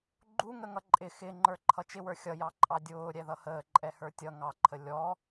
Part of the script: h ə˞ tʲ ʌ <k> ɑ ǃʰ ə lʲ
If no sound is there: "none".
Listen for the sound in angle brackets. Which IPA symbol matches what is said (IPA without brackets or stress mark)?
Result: ŋ